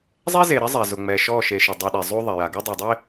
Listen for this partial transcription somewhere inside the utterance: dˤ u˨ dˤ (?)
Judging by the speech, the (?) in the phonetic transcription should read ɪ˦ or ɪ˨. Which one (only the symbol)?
ɪ˦